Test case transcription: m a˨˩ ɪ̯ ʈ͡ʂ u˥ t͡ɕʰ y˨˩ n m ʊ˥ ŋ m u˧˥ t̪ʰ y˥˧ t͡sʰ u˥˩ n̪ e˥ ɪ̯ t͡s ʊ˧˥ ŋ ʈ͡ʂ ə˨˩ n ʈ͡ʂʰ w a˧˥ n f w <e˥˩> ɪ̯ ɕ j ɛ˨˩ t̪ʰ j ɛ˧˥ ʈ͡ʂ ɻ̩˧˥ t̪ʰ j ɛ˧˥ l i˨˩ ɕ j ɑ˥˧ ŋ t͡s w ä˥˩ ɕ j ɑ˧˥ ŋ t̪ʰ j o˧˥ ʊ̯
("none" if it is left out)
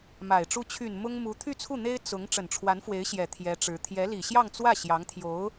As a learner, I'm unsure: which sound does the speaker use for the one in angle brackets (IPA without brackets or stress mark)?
e˧˥